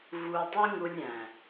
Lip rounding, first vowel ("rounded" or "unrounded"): rounded